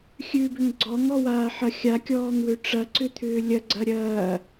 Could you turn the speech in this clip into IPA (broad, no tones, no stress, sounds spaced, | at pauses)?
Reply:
xʲ ʉ b ʏ ŋ ɡ͡ǀ ɔ ŋ ɔ w aː ħ ɐ xʲ a kʲ ɔː ŋ w ʏ ʈ͡ʂ ɐ ǀ ʏ t̪ʰ ʏː lʲ ɐ ɡ͡ǀ ɐ ɾʲ ɐː